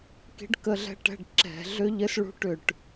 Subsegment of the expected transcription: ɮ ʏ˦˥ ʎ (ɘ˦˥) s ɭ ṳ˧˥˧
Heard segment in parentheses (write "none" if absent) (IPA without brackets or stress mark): ɘ˦˥